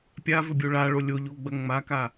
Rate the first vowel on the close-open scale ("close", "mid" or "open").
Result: open